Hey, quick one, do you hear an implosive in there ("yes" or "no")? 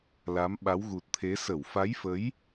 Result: yes